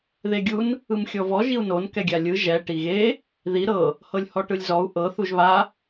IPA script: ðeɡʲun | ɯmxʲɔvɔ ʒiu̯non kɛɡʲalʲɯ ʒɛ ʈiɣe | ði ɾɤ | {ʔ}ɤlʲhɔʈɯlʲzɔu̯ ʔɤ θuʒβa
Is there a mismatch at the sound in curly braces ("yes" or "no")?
yes